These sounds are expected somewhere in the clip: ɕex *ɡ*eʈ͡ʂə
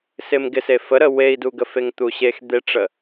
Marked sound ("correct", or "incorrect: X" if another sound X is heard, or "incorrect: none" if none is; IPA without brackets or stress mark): incorrect: d̪